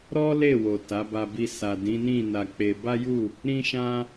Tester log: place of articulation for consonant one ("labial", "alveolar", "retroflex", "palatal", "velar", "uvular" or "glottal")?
alveolar